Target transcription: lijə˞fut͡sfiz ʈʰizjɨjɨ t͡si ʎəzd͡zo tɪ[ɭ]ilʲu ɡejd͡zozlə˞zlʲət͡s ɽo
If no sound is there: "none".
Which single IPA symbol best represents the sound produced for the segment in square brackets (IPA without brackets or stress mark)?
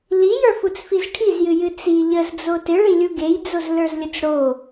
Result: ɭ